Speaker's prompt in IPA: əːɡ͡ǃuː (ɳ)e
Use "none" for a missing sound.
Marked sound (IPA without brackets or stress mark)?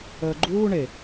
ɳ